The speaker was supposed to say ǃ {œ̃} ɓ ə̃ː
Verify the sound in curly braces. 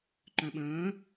correct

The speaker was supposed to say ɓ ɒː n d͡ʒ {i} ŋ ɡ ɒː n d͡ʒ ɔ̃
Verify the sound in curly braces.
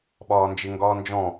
incorrect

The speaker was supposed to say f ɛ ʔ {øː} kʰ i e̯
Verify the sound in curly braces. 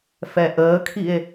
incorrect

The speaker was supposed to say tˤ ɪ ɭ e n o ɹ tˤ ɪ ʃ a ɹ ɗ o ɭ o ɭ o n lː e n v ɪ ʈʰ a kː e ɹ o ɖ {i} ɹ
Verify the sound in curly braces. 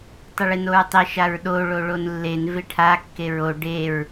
incorrect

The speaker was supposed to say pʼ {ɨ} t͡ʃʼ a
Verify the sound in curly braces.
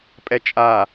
incorrect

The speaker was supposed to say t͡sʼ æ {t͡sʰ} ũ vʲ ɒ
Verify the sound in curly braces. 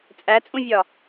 incorrect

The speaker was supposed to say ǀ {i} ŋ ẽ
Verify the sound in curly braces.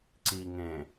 correct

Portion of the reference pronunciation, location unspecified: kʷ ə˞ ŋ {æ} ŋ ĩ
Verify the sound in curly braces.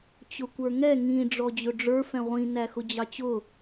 incorrect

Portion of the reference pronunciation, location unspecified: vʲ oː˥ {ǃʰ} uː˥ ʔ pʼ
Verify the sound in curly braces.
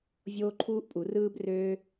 correct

